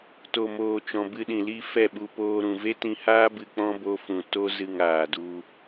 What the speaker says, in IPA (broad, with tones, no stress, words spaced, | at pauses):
to˨moː˨t͡ʃɔ̃˨ bɨ˧ɗĩ˨li˦˨ fɛ˦˨ɓu˧poː˧ ɾũ˨ve˦tĩ˧haː˦ bɨ˧k͡pɔ̃˦ bo˧fũ˨ to˦ zɨ˦˨ŋaː˨du˧